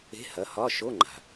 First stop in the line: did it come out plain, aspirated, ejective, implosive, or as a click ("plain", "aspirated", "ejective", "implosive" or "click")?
click